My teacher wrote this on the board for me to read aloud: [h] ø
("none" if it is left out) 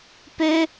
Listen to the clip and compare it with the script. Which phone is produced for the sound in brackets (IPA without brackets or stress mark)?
p